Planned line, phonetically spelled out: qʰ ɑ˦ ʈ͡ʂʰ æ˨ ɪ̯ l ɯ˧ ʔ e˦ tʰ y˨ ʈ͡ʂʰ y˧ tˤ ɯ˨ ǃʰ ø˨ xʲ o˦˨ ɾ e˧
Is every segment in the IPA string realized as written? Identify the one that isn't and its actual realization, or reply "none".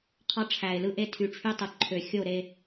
none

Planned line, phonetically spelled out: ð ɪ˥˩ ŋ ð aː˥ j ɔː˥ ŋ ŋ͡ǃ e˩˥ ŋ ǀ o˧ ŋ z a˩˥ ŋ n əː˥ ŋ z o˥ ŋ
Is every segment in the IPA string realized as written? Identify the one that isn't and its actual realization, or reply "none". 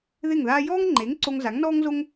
əː˥ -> ɔː˥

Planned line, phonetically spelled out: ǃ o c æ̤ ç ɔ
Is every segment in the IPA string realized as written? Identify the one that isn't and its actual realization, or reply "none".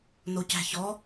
ǃ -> n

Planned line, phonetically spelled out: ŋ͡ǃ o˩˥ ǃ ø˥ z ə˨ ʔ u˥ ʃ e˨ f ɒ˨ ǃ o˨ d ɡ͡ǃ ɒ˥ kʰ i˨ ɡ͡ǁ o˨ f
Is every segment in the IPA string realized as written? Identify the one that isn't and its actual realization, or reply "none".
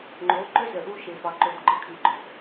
ɡ͡ǁ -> ɡ͡ǃ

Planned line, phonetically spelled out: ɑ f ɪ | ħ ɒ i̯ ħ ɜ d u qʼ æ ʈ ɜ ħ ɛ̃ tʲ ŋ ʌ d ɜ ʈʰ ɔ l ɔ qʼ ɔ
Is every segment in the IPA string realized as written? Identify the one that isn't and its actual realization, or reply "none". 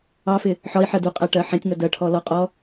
none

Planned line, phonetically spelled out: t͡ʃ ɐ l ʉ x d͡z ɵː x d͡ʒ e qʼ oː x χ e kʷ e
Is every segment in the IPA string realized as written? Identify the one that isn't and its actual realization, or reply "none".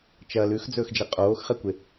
none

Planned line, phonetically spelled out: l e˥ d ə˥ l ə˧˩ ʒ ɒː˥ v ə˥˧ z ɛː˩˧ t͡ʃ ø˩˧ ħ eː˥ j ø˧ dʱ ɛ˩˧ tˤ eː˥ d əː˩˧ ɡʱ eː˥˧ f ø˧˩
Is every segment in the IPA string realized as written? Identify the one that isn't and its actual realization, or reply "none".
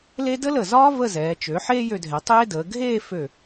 ʒ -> z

